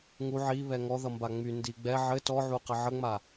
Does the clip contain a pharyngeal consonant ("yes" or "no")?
yes